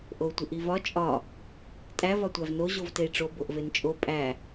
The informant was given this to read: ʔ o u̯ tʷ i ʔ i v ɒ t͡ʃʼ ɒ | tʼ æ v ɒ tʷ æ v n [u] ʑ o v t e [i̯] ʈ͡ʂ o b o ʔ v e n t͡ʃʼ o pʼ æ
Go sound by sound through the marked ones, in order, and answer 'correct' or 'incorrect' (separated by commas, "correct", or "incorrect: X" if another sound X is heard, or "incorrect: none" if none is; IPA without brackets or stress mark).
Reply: incorrect: o, correct